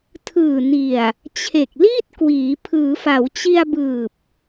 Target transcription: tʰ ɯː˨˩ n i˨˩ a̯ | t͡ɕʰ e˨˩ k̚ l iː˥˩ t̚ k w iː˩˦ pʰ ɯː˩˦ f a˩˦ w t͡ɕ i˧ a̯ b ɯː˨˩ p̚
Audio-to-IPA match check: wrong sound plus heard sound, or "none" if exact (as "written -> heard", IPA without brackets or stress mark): none